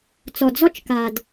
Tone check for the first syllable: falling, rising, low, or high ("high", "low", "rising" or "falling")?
low